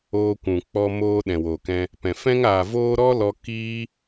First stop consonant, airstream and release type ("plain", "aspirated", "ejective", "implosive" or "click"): plain